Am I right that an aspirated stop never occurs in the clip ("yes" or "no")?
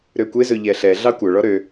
yes